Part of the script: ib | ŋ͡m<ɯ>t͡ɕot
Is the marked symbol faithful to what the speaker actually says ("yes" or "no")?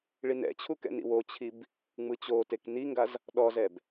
yes